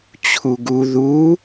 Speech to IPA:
t͡ɕʰuɡu ðu

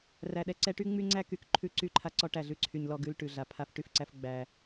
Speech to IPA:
ræ˨ɗɛ˨ ǀɛ˦ ʈy˦ ŋ͡my˦ŋ͡ǀæ˦ky˨k ǃʰʉ˦ ǀy˦˨ǃʰa˦ǀɔ˦ ʈæ˨ɮʉ˦ǀʰy˨ɲ lɔ˦ɡʉ˦l ʈʉ˨ɮa˨ pʰa˦fʈy˦˨fǀæ˦f ɡ͡bæ˦

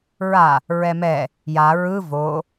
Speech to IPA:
ɹa | ɹɛmɛ | ja ɹɯ vo

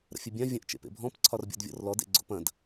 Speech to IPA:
ɾə̰fʲəbʲã vʲɐ̃ʔ t͡ʃḛpḛbʱɔ̃p ǀʰɒrbʲɔ̰dvʲɔ̰rlɔd ḛɡ͡ǀo̰pɐ̃d

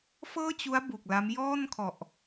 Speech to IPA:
fɤː˥˩t͡ɕu˦˥a̯ bu˨˩k̚la˦˥m jɔː˥˩nkʰɔ˨˩ʔ

